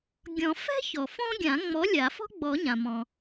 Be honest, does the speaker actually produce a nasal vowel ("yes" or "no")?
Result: yes